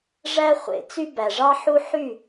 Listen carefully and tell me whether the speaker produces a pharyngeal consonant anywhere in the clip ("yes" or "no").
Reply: yes